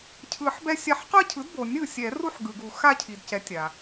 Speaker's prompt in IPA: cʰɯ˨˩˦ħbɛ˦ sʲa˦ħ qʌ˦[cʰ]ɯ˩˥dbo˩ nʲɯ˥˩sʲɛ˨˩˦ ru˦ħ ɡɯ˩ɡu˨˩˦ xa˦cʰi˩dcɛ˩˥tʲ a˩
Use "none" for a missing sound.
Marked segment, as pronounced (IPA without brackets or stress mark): cʰ